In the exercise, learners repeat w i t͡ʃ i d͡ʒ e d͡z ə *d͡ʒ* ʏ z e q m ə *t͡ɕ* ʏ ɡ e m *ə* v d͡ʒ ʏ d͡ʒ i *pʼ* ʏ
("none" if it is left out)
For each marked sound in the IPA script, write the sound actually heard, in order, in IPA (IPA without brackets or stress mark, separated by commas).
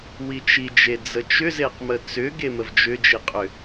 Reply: t͡ʃ, t͡s, ə, qʼ